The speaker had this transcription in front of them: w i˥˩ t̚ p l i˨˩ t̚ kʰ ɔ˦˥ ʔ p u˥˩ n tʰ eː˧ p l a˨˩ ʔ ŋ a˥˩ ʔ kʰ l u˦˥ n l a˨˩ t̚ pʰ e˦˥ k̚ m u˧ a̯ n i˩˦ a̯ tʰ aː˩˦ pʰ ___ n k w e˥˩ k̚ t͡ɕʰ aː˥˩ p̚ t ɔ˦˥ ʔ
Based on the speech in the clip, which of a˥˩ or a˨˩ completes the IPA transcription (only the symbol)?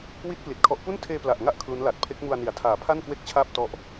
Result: a˥˩